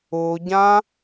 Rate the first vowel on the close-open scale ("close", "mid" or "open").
close